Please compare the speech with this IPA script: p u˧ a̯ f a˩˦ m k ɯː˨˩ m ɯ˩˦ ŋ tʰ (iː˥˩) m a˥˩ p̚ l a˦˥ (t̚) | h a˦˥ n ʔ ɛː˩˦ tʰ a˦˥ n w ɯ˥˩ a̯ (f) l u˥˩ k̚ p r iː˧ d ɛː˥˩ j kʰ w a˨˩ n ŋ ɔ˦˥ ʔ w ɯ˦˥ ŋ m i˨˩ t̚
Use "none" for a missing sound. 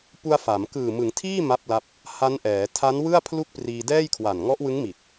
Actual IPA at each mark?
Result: iː˥˩, p̚, pʰ

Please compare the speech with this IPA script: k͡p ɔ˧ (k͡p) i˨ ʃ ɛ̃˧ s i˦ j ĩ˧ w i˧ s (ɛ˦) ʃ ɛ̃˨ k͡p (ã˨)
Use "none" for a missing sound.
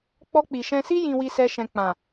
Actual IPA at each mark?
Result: k͡p, ɛ˧, ã˨

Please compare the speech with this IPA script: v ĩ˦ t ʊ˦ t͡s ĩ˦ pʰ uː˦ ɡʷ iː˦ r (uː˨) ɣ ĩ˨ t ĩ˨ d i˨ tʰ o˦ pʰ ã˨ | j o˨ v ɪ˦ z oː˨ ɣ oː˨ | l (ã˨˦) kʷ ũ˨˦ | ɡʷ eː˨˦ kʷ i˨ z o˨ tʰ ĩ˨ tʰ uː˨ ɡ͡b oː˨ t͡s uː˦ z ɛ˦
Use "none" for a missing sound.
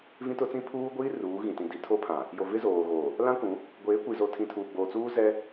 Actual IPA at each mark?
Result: uː˨˦, ã˦

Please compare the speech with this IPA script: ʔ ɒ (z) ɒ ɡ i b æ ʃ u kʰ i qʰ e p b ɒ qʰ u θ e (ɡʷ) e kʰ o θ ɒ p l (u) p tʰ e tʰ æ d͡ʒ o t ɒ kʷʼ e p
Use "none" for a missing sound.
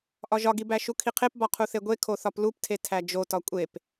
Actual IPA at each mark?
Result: ʒ, ɡʷ, u

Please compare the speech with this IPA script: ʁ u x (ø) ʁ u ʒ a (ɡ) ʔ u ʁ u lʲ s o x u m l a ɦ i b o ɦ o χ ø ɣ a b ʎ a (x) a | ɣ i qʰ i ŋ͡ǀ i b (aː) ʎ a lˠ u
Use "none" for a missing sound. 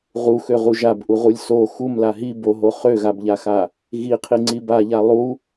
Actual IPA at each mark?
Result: ø, b, x, a

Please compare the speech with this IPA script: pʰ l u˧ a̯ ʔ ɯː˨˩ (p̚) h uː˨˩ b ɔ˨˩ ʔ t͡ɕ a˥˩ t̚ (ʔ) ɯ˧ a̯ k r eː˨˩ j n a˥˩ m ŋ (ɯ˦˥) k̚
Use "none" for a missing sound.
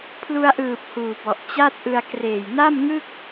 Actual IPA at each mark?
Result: p̚, ʔ, ɯ˥˩

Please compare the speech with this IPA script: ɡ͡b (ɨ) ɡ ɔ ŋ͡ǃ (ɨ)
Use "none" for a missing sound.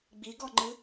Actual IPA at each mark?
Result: i, ɨ

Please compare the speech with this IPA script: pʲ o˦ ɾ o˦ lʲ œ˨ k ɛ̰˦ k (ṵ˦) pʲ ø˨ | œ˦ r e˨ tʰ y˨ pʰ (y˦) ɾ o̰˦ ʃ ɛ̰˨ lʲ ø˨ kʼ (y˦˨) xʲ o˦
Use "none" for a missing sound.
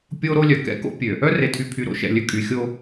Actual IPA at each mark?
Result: o̰˦, y˨, y˨

